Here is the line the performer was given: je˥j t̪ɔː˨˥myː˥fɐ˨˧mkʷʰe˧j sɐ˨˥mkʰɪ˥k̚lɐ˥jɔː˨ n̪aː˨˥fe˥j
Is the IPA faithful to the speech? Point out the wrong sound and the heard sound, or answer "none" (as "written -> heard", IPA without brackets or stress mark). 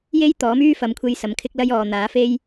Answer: none